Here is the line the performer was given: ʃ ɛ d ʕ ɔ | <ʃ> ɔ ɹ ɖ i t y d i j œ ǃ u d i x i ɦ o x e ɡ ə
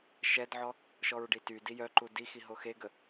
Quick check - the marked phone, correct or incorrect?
correct